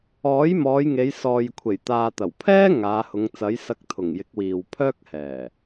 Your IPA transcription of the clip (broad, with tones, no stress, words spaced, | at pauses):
ɔː˨˥jmɔː˨˧j ŋe˨˧jsɔː˨jkʷʰe˨˩jt̪aː˨ t̪ɐ˨˩wpʰɛː˥ ŋaː˨˧hʊ˨˧ŋt͡sɐ˨˥j sɐ˧k̚t̪ʰʊ˨˩ŋjɪ˨˥k̚ wiː˨wpʰœː˥k̚hɛː˨˩